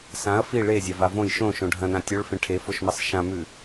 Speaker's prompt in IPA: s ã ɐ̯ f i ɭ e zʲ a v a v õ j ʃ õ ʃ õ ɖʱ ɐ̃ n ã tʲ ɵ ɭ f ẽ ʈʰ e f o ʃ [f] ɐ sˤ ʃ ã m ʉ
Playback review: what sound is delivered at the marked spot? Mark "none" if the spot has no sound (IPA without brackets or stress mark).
m